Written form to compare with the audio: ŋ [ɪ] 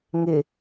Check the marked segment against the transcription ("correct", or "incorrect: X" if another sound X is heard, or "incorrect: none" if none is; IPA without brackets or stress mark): correct